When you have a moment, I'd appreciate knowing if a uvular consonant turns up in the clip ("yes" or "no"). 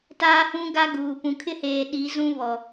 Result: no